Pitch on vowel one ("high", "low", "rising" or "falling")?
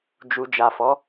low